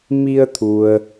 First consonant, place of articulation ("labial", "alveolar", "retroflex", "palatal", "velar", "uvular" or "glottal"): labial